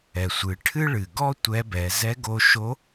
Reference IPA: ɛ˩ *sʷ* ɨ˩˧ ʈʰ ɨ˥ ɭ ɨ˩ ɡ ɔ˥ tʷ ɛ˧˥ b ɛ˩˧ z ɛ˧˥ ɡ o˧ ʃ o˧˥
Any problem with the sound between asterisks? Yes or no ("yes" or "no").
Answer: no